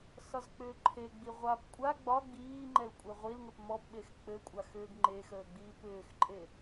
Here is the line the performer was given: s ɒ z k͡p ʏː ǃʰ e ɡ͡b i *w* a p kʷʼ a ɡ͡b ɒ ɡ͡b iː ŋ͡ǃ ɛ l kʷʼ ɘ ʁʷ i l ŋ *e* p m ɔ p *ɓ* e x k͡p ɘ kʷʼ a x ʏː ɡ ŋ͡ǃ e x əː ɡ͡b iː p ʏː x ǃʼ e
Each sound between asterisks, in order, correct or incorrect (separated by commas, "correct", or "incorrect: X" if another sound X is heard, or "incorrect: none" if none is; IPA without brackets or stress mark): incorrect: ʁʷ, incorrect: ɘ, correct